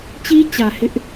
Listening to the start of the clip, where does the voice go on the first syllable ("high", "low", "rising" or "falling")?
high